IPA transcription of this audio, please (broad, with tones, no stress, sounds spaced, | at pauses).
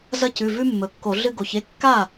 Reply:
z ɐ˦ c ʉ˩˧˩ v ʉ˦ mː ɵ˩˧ kː o˧˩˧ ɮ ɨ˦ ɡ o˩˧ ç e˦ kː a˥˩